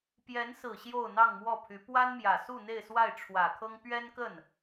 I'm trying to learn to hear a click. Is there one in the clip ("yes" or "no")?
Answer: no